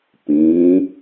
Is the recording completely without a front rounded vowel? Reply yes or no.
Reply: yes